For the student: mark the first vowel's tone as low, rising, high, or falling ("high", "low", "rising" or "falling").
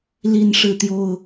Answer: high